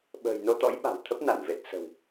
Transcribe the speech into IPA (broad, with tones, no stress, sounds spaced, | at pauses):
ɓ ə̤ː˨˩ j n o˧ t̪ ɔ̰˧˥ j ɓ a̤˨˩ w t̪ʰ ə˦˥ p̚ n a˧˩ n v e˨˩ t̚ s ə̤˨˩ w